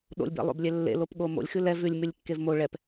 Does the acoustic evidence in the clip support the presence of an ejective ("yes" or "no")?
no